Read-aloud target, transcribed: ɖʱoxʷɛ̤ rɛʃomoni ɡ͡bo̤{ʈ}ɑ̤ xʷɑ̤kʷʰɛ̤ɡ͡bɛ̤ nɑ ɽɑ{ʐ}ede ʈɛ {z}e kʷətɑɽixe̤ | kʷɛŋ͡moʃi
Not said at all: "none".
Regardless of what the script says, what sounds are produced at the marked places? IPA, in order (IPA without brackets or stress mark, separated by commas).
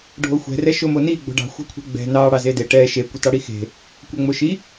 ɖ, z, ʃ